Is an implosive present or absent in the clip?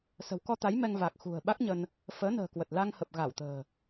present